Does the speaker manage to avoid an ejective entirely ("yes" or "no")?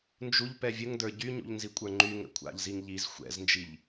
no